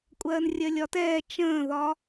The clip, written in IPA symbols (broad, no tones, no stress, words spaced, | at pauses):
kʷʼɜːnrʲɜlʲɒtɛː t͡ʃə̃ːðɒ